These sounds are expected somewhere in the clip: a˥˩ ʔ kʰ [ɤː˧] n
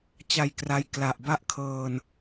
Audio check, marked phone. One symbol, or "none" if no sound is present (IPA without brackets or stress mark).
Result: ɤː˧